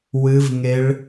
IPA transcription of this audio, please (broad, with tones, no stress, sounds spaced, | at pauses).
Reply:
w ɨ˦˥ v ŋ e˦˥ ɭ